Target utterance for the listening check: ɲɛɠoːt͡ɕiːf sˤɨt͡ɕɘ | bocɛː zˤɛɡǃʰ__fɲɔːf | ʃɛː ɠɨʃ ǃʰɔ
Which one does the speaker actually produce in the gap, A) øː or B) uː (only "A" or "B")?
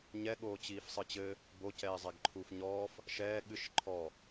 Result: B